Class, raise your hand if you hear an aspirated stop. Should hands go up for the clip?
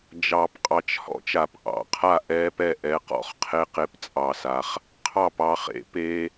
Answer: yes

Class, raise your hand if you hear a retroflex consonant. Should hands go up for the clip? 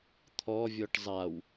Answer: yes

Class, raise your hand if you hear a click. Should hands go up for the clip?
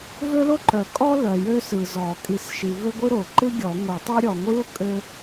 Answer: yes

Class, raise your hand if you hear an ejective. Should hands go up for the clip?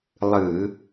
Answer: no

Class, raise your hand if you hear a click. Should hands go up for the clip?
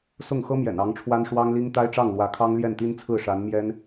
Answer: no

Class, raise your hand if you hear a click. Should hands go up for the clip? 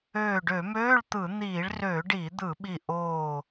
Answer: no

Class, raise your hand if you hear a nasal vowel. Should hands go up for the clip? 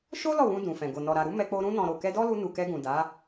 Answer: yes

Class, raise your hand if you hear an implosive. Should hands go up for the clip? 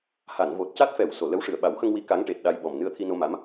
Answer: yes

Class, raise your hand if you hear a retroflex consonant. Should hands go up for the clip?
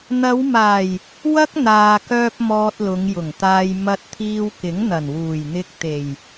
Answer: no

